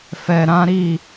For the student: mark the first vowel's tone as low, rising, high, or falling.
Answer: low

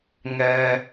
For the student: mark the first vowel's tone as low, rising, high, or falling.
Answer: high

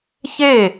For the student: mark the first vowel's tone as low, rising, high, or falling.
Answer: falling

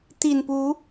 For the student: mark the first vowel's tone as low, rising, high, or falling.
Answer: low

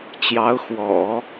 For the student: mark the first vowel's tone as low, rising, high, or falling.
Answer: rising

